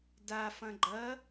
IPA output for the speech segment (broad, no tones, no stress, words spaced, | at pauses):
da fɐ̃ɡ͡ǃɐ